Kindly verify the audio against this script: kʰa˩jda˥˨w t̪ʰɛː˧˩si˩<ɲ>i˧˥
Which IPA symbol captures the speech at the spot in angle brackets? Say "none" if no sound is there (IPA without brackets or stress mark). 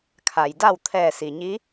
ɲ